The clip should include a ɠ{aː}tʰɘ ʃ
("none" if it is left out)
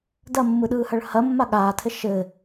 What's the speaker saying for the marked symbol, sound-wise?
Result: aː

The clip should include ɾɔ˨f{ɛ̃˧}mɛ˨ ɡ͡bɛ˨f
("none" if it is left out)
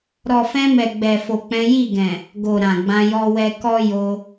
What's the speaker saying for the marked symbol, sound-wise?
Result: ɛ̃˧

